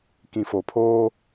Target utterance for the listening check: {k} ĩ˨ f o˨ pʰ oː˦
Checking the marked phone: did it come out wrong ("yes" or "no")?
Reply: no